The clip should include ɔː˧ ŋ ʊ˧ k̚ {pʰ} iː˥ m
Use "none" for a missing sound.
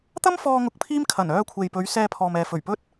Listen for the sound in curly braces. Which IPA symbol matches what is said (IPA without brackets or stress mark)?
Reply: pʰ